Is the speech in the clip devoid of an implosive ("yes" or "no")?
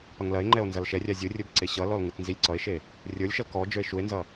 yes